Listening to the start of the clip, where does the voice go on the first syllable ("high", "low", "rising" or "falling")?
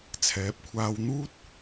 rising